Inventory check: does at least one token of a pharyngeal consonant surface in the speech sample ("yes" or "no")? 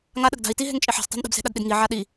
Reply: yes